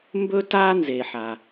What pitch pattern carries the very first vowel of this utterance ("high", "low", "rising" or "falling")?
high